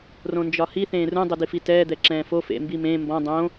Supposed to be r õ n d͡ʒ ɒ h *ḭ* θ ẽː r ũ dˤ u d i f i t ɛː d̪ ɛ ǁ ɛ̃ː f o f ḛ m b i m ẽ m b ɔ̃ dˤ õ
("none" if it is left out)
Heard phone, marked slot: i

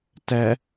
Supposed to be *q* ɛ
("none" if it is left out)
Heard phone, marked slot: t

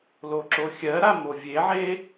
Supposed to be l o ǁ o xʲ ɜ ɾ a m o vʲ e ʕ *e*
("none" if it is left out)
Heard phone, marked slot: e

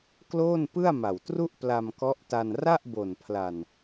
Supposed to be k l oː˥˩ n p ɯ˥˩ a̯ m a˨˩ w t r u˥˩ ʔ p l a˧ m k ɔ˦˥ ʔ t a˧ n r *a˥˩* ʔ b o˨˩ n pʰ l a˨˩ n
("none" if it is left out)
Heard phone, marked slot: a˥˩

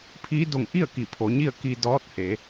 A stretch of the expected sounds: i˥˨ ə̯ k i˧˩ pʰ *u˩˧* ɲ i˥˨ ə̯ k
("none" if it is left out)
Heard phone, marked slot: o˩˧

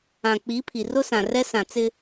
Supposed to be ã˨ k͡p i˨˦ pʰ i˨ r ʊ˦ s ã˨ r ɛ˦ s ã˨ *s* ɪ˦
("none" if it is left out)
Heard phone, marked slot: t͡s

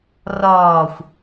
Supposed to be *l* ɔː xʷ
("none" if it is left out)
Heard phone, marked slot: r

